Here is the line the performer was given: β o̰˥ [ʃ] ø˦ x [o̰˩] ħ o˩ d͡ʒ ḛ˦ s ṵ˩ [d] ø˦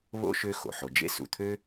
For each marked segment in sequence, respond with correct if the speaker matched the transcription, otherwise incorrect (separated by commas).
correct, correct, incorrect